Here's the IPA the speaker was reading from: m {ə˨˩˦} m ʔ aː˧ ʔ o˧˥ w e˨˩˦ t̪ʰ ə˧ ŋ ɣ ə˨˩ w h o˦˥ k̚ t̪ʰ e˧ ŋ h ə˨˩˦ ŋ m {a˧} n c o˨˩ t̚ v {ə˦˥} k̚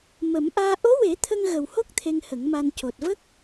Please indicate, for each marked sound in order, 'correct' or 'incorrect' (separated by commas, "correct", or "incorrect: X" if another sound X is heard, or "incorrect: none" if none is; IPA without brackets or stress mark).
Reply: correct, correct, correct